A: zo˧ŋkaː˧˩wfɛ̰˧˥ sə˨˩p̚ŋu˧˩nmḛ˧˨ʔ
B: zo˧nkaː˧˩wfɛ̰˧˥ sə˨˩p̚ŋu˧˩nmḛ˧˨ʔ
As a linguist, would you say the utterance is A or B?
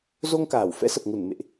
A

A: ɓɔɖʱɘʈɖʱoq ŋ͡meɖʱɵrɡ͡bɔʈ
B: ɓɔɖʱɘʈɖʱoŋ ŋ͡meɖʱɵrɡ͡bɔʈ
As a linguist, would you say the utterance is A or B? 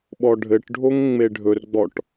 B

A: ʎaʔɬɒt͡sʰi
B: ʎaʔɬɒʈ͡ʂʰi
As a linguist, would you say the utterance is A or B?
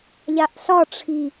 B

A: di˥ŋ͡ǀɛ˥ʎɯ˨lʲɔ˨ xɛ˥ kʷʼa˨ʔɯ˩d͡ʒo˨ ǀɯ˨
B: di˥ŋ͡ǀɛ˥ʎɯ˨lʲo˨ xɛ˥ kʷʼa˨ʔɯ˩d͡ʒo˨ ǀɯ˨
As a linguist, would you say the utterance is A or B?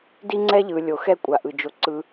B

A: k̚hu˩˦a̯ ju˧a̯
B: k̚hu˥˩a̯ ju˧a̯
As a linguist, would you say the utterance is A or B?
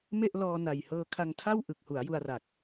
A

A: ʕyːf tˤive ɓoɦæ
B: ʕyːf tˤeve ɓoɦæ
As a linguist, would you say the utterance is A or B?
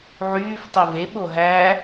A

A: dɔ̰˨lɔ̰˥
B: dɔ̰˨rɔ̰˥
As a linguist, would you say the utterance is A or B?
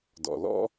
A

